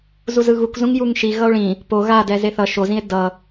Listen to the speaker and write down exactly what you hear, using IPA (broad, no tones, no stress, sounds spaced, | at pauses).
z u z ɯ ɣ u k z ũ ŋ j u ŋ ʃ i ɣ ʌ o̯ ɭ ĩ | p o ɣ a d ɛ z e θ ʌ ʃ o z ĩ e̯ d ʌ